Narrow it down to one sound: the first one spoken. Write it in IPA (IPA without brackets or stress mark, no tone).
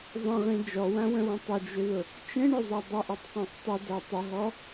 zˤ